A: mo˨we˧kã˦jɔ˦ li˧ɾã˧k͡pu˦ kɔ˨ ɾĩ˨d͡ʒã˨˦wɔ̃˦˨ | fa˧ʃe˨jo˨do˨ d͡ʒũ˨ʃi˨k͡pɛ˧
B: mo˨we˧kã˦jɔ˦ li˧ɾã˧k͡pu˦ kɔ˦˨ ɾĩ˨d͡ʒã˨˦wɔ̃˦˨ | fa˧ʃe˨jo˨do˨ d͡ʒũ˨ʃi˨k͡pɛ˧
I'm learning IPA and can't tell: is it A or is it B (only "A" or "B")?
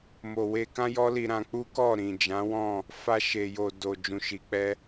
B